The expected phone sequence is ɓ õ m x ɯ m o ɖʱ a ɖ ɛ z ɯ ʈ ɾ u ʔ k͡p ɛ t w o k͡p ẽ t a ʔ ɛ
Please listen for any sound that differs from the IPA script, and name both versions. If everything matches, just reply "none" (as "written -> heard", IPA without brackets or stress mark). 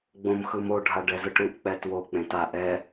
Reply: ɓ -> ɡ͡b